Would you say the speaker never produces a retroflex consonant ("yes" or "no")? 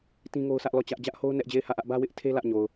yes